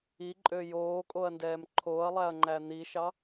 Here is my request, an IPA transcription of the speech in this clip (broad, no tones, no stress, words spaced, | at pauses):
iǃʼø joːkʼoɐ̯ndɛːm ǃʰoːɐ̯lˠæɐ̯ŋ͡ǃæ n̪iʃɑ